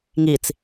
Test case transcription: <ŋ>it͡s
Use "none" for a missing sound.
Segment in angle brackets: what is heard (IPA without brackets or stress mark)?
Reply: ŋ